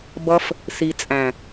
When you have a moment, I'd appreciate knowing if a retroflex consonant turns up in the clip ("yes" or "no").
no